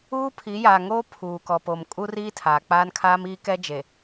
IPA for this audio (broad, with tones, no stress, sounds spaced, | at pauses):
uː˦ pʰ i˨˦ j aː˨ ŋ oː˦ pʰ uː˨ k ɔ˨ p o˨ m kʼ u˦ r iː˦ tʰ aː˨ k͡p aː˦ n kʰ aː˦ m iː˦ k ɛ˦ d͡ʒ e˨